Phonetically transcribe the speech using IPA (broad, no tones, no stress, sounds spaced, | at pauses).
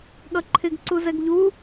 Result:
ɠ ʌ ǃʰ ɪ ɡ ǀ u z ɛ ɡ ʎ u